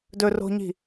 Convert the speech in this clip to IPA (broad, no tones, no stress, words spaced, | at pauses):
dɵro̤ɲi̤